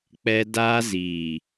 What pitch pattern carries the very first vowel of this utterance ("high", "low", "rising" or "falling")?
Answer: high